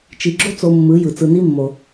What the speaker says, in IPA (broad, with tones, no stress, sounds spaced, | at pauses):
t͡ʃ i˨ ɡ͡ǁ o˦ t͡s o˧ mː ɯ˨˦ j ɯ˨ t͡s ɯ˧ n i˦ mː o˨